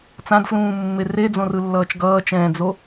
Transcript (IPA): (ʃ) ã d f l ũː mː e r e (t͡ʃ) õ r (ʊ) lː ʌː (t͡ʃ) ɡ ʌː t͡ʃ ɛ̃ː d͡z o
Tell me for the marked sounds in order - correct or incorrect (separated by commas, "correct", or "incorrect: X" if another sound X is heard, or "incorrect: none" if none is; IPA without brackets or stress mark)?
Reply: incorrect: t͡s, incorrect: d͡z, incorrect: ɯ, correct